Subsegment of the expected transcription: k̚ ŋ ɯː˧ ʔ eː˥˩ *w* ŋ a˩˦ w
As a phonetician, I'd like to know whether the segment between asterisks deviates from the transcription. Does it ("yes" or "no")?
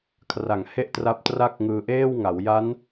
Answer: no